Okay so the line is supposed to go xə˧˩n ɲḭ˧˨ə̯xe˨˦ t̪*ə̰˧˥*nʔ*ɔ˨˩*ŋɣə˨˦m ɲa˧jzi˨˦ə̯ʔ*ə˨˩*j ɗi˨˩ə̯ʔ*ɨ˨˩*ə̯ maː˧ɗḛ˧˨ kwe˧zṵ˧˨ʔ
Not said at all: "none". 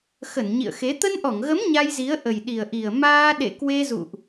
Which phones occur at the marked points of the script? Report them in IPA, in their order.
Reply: ə˧, ɔ˧˩, ə˨˩, i˨˩

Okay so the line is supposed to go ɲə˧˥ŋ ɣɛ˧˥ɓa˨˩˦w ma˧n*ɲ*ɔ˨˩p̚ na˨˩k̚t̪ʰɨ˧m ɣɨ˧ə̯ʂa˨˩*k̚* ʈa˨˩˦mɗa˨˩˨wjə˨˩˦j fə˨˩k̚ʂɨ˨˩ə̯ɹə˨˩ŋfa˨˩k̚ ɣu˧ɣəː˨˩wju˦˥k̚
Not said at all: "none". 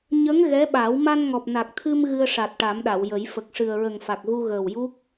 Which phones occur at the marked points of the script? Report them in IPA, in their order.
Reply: ŋ, t̚

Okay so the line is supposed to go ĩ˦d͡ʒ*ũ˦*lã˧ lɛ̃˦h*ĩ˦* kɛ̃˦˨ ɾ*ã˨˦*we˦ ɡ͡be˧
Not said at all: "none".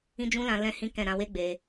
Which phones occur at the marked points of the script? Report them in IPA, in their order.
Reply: ũ˦, ĩ˦, ã˧

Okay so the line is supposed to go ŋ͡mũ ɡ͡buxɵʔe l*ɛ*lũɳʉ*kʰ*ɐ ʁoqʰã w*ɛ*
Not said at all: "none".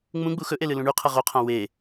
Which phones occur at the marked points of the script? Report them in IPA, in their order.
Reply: ɨ, qʰ, e

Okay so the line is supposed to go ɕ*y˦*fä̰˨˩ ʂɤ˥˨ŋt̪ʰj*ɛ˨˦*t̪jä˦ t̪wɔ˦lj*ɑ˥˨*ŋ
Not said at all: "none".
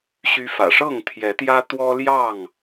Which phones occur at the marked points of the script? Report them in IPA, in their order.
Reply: y˦, ɛ˨˦, ɑ˥˨

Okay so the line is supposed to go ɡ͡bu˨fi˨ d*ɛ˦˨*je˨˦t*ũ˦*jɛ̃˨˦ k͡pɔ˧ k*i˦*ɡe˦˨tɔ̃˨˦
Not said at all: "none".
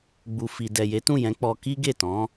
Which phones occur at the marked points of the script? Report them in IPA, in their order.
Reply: ɛ˨, ũ˦˨, i˦

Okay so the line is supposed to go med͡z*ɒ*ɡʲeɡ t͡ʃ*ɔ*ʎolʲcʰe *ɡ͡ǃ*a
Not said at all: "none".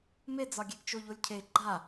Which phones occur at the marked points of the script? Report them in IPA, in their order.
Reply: ɒ, o, ɡ͡ǃ

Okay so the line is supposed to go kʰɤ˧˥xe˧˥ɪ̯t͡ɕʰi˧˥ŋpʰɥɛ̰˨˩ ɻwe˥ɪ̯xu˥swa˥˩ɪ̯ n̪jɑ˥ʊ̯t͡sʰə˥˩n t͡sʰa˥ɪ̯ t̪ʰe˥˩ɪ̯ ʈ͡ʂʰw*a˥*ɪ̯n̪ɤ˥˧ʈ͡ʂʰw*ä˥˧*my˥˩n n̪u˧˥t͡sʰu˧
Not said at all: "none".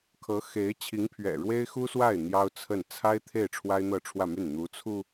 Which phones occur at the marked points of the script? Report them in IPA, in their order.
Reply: a˥, ä˥˧

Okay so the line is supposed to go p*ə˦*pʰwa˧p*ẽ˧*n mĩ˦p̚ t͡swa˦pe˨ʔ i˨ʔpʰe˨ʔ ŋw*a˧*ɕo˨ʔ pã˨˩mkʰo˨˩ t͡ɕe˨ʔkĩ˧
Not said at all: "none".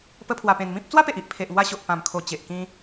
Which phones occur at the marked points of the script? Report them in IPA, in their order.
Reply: ə˦, ẽ˧, a˧

